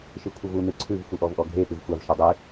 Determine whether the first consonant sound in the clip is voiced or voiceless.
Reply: voiceless